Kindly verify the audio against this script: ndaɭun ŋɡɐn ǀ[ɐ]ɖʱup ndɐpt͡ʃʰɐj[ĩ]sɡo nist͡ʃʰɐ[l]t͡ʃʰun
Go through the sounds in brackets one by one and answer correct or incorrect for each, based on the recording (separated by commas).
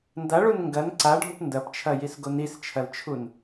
incorrect, incorrect, correct